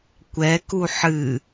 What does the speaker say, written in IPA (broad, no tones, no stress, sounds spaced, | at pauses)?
kʷ ɛ k u ħ ɨ